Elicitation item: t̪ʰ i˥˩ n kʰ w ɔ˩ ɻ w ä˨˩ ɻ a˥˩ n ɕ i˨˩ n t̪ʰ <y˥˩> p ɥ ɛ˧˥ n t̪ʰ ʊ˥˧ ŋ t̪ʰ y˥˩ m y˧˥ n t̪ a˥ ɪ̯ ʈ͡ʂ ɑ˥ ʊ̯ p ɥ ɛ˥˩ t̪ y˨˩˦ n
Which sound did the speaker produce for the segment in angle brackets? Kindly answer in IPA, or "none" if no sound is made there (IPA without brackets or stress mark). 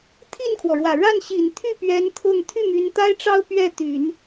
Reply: y˥˩